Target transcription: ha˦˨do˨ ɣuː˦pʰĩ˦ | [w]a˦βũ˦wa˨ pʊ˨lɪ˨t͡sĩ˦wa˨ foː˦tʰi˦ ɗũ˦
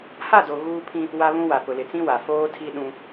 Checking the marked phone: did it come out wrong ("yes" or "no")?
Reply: no